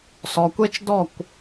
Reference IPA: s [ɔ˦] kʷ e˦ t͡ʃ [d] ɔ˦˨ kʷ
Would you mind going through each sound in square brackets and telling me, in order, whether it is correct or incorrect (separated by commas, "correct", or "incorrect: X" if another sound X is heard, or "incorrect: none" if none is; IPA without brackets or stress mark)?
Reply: incorrect: ɔ˨, correct